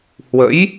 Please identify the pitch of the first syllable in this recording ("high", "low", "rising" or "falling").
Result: rising